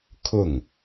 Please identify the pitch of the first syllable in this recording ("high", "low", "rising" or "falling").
falling